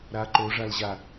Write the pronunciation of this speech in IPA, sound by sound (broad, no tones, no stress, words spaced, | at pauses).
ɾa ǃoʐalʑa